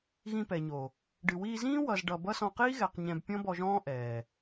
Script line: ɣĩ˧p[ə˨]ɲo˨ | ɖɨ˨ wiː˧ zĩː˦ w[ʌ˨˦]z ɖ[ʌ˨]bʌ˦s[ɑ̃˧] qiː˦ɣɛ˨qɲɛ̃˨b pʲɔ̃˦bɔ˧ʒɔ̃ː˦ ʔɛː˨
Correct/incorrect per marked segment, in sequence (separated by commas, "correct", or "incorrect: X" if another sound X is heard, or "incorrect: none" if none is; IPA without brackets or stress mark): incorrect: ɛ˨, incorrect: ʌ˧, correct, incorrect: ɔ̃˧